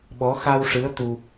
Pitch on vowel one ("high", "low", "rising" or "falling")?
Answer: rising